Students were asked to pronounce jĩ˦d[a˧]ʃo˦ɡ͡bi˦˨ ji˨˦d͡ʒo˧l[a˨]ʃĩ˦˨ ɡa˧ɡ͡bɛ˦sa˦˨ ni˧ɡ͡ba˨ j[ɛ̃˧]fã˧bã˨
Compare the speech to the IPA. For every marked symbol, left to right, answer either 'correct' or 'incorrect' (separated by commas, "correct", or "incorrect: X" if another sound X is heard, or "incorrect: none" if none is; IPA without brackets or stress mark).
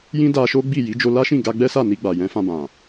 correct, incorrect: a˦, incorrect: ɛ̃˨˦